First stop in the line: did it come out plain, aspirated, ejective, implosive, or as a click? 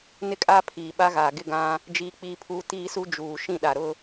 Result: ejective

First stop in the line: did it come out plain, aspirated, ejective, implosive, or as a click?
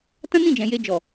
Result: plain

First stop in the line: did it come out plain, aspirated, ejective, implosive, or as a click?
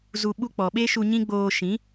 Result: implosive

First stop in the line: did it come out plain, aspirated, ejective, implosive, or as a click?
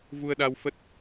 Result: implosive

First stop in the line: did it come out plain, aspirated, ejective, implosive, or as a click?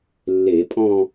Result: ejective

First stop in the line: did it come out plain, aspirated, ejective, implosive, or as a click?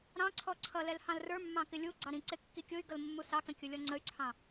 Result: click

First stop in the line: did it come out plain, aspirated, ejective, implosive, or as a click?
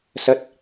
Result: plain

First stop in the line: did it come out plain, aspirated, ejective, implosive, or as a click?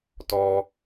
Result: plain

